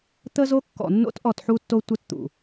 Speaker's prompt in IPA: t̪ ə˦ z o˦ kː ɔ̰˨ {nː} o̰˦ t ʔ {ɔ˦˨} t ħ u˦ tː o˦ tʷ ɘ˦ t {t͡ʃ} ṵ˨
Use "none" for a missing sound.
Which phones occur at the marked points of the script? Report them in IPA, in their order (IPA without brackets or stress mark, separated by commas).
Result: nː, ɔ˦˨, t̪